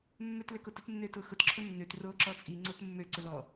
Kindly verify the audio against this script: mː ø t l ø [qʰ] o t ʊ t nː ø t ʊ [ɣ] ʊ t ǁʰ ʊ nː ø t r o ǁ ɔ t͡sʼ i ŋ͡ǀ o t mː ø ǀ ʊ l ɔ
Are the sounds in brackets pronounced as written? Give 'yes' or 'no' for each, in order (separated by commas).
no, no